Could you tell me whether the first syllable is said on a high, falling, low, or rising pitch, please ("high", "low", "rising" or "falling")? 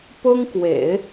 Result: high